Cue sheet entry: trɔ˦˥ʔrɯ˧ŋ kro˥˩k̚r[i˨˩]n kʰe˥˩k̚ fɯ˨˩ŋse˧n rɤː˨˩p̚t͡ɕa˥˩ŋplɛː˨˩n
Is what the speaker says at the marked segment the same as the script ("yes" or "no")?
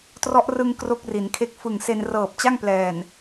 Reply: no